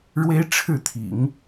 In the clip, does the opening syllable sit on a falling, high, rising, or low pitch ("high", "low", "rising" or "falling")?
high